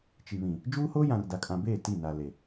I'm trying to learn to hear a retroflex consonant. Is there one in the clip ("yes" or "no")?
no